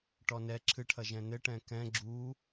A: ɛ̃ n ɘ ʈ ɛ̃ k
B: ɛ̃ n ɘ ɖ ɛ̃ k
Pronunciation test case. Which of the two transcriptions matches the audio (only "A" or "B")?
A